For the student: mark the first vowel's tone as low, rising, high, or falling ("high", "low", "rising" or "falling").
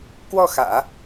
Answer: falling